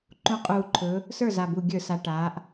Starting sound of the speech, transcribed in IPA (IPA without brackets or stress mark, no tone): ǃ